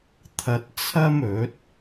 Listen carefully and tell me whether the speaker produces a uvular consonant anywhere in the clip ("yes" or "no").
no